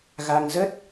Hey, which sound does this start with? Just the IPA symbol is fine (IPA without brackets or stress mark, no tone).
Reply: ɣ